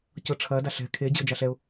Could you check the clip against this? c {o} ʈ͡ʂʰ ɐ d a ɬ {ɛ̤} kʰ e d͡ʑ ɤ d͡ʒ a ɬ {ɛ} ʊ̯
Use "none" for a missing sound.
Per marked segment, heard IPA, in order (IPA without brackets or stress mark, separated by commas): ɤ, ɛ̤, ɛ